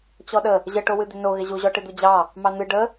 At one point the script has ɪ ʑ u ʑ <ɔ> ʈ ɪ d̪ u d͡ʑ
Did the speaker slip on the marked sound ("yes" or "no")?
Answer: no